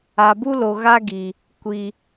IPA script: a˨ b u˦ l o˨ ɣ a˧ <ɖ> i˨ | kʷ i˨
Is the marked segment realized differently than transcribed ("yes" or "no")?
yes